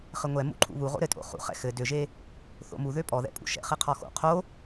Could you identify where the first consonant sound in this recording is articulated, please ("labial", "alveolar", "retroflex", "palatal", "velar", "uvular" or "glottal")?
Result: uvular